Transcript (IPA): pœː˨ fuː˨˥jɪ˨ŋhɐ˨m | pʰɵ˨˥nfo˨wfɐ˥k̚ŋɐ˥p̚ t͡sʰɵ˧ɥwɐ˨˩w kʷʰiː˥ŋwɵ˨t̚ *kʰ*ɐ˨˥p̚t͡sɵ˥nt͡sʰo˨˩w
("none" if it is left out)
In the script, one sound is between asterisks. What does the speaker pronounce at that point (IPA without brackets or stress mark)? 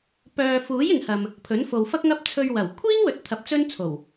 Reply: t̪ʰ